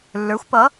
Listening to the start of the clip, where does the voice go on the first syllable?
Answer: rising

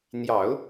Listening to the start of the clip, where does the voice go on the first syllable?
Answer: low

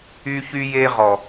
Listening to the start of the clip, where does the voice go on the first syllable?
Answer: high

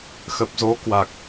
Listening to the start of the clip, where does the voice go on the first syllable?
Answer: low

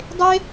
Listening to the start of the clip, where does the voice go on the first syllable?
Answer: high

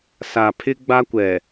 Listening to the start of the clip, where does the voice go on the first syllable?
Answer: low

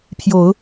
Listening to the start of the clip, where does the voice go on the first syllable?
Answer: rising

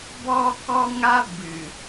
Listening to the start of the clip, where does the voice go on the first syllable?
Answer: high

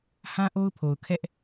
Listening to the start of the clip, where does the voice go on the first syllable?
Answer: high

